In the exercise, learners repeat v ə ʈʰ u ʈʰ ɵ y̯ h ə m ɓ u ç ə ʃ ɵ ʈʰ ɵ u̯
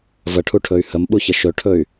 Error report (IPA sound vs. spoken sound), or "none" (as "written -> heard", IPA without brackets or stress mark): u̯ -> y̯